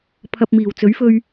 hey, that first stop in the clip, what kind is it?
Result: aspirated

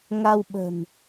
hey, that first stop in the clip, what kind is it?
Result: implosive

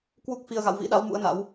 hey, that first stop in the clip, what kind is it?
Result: plain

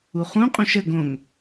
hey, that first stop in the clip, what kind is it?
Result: ejective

